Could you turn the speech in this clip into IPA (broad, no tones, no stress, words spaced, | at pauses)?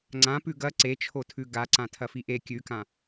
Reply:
ŋ͡ǀã pʉɡɐ ǀet͡ʃʰotʰʉ ɡaǀã tʰɐfiʔe kʲʉkã